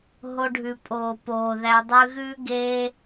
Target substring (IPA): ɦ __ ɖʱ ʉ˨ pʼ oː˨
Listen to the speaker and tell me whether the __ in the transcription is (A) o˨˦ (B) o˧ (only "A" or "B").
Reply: B